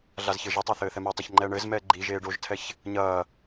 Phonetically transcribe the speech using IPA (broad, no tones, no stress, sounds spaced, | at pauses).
ɮ a z ç ɘː ʒ ɛ tˤ a θ ɘː θ ɛ m o tˤ ɐ ç ŋ͡ǃ ɛː ɳ ɘː z m ɛː ɡ͡ǃ i ʒ eː ɖ o ʒ tʰ ɛ ç | ɲ ɐː